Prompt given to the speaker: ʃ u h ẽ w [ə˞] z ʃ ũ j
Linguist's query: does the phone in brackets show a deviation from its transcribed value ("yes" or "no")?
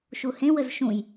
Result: yes